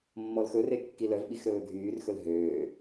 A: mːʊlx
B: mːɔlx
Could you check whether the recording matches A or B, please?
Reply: B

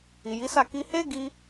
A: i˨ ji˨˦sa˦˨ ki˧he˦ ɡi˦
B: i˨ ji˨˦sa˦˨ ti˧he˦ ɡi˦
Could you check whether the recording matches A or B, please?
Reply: A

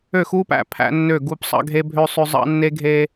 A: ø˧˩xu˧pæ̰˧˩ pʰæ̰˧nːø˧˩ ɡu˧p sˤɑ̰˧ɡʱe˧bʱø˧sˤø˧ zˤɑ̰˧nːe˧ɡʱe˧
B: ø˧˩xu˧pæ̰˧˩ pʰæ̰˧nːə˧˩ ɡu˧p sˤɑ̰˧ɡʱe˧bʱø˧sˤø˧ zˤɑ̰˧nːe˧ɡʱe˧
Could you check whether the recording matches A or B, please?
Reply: A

